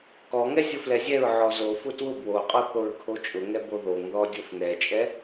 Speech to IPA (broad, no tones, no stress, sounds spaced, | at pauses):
k ɔ ŋ ɛ zʲ ʊ f l ɛ zʲ ɛ ɹ ʕ ɔ z o f ʊ t w ʊ b w o qʼ ɔ θ o ɹ kʰ o t͡ʃʼ ʊ ŋ ɛ b o ð o ŋ ð ɔ dʲ o f n ɛ t͡ʃʼ ɛ